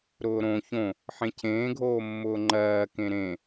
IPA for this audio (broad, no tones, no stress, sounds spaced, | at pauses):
ɾ ʊː ɾ õ ç õ | ħ ẽ cʰ ẽː ɡʱ oː mː ʊː ŋ͡ǃ ɜː k ẽ ɾ ẽ